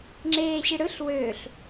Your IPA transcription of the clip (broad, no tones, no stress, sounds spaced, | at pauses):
ŋ͡ǁ eː ɕ i ɽ ɯ ɬ w ø ɬ